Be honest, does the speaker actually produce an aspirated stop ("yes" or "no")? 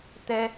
no